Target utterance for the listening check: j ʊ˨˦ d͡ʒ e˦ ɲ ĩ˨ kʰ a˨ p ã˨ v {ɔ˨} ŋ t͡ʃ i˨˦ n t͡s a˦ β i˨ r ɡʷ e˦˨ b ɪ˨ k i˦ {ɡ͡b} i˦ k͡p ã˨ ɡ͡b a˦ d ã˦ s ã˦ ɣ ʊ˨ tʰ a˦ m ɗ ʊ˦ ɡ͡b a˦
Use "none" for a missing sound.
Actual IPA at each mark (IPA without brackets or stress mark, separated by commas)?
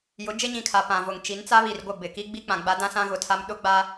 ʊ˨, ɡ͡b